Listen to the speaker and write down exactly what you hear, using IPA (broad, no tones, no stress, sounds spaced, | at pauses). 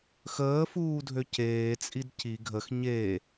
x əː f uː dʱ ø c eː t͡sʼ i d c i ɡʱ ə x ɲ e